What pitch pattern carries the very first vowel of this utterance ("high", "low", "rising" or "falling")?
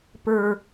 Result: high